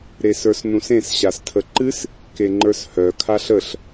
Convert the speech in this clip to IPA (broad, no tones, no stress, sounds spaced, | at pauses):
ɾ e s ə˞ s n ũ s ẽ s ɕ a s tʰ ə ǃ ɨ s | k e ŋ͡ǃ ə˞ s h œ kʰ a ɬ ə ɬ